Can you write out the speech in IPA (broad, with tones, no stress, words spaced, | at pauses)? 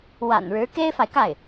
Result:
wa̰˨˩nɻɻ̩˧˥ ke˥ɪ̯fa˨ɪ̯ka˥˩ɪ̯